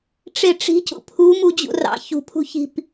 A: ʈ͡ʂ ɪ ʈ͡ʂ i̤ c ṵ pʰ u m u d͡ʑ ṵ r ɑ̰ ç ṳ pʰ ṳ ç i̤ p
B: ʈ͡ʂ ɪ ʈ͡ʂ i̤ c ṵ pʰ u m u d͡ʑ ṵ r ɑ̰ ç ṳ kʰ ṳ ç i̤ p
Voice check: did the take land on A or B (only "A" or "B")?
A